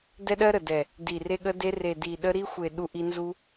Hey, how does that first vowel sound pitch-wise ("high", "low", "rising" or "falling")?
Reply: high